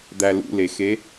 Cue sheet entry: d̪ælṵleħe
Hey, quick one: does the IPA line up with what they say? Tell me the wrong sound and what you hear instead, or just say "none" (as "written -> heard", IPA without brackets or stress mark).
ħ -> x